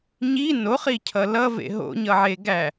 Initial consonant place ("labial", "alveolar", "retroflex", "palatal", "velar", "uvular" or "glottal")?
palatal